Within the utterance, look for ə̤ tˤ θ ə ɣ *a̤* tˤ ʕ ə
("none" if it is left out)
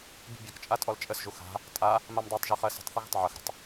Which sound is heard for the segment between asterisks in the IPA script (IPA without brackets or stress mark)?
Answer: ə̤